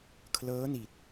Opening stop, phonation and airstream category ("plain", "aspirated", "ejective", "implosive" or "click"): aspirated